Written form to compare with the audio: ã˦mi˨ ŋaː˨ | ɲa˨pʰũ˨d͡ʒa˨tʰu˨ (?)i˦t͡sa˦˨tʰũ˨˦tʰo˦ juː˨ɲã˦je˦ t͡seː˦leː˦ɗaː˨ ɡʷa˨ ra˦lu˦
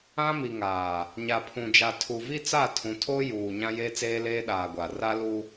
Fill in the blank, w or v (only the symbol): v